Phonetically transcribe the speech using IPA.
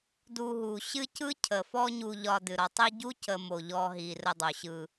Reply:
du˨ɦu˩ ɕɨ˦ cɯ˥cʰə˩fɔ˦ ɲu˨ʎɒ˨ dɨ˩ɾɒ˨tˤi˦ ɟu˥cə˨mo˩ ʎɔ˨ɦi˩ rə˨dˤo˩ɕɯ˨

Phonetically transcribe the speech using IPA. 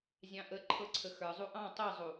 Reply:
zʲɑ̃ʔə ǃʰɤǀʰəxə˞ zˤuʔɑ̃ tˤɤzˤu

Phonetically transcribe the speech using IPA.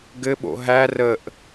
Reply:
ɡɘɓo̰ ɦæ rəʔ

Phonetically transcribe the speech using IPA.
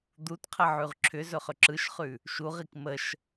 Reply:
d̪utqʰəʕʉʁ ǁʰʏzɵχʏ ǁɯʃχʉ | ʃuʁik məʃ

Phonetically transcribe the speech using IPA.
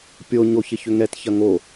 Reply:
pʲo ɲoçɪçʏŋɛt çɐŋo

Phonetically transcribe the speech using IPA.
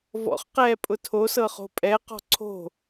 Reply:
vɔ̰χqɛː pʼʊtʰosɤ χo̤pʼɛqɔ̤ ǀʰo̤

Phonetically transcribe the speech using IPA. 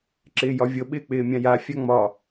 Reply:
ǁɪːjɒvʲɤ ɓɪːk͡pɪːmʲãja fʲaŋ͡mɒ

